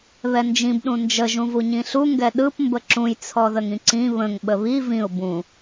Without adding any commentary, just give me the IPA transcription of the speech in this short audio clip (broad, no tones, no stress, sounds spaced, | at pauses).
β ɛ n d͡ʒ ĩ b ɗ ũ n d͡ʒ ə ʒ ũ v u ɲ ĩ ɬ u ŋ ɡ ɛ ɗ ɯ p m b ə ǁ ũ j t͡sʰ ɔ ð ə ŋ ĩ ǀ ĩ β ə̃ ŋ ɓ ə β i v ĩ ʊ̯ b ũ